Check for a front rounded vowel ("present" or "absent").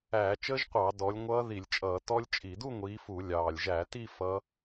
absent